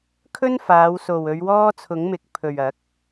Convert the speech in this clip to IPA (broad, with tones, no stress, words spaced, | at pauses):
kʰɵ˥nfaː˨˧wso˨w ɵ˨˧ɥwɔː˥t͡sʰʊ˨˥ŋmɪ˨˥k̚ pʰɵ˨ɥɐ˨˥k̚